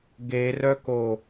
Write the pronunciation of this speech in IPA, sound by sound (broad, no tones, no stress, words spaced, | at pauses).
ɡerœko